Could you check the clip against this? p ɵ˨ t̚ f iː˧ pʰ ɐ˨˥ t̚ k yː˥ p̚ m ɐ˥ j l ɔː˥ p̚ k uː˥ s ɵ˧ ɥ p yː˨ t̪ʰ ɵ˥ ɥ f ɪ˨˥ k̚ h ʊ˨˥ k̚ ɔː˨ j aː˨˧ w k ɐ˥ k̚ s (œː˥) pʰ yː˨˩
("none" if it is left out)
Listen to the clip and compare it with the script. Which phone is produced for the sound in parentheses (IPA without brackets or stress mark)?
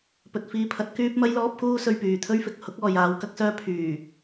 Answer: œː˥